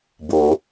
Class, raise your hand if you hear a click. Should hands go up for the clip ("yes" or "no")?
no